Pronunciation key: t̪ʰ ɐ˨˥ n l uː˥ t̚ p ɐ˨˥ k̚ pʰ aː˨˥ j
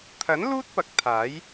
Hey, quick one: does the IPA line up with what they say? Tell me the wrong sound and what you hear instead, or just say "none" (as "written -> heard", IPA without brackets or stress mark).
pʰ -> t̪ʰ